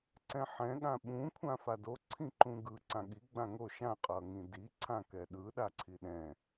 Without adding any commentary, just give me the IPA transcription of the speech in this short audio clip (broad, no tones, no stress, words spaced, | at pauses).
ǀɛ̃ħɛ̃ ɠãɓũ kʷʰãfado ǀʰĩǃũɡɯ ǀãɠi ɡ͡bãŋo ʃã qʼʌŋĩdi ǀʰãkɛɗɯ ɗaǀʰiɗɛ̃